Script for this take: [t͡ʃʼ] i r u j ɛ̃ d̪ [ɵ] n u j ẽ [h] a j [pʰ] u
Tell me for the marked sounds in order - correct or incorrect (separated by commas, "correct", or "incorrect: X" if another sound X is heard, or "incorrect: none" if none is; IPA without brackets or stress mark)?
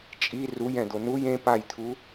correct, incorrect: o, incorrect: p, incorrect: t̪ʰ